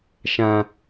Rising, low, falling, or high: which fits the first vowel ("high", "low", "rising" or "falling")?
high